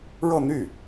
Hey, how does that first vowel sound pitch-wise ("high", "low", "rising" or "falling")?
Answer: falling